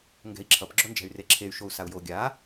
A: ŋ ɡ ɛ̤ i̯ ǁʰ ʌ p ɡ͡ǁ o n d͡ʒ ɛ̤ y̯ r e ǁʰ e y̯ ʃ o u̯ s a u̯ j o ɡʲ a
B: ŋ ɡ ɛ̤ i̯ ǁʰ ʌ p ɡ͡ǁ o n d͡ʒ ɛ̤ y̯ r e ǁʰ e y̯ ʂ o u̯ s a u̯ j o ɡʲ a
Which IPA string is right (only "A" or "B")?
A